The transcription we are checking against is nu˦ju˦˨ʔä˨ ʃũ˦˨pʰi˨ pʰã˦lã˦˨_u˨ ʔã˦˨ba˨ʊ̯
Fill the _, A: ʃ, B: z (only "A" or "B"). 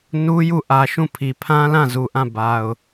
B